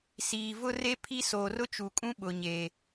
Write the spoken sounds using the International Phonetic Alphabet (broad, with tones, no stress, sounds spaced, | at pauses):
s iː˨ v ʊ˦ r e˦ pʰ i˦ s oː˨ r ʊ˦ t͡ʃ u˨ kʼ ũ˦ ɓ ʊ˨ ɲ e˨